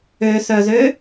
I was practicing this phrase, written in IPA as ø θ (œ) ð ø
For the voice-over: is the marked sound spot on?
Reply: yes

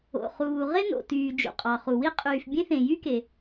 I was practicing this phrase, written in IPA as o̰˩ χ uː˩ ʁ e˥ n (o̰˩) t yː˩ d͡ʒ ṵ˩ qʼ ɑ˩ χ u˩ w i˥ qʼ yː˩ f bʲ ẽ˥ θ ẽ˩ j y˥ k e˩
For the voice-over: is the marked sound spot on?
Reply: yes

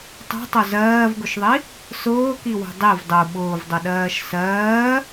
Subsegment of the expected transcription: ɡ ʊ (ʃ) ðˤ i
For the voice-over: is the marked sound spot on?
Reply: yes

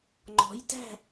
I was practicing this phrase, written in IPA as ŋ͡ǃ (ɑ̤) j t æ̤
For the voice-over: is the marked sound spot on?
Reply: no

